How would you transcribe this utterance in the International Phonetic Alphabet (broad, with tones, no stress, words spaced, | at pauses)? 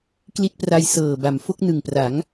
kli˦˥t̚pra˧jsɤː˨˩ ba˩˦mfo˦˥k̚ nɯ˨˩ŋpra˩˦ŋ